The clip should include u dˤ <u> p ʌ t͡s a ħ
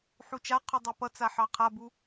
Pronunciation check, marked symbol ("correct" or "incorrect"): incorrect